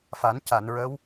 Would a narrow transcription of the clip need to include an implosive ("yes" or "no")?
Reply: no